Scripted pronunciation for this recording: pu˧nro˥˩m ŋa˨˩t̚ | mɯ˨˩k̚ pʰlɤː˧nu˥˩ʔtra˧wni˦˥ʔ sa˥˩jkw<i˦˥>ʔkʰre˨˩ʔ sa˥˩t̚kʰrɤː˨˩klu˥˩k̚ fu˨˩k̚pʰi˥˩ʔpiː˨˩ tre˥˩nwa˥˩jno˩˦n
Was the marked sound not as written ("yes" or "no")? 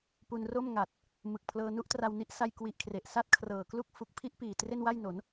yes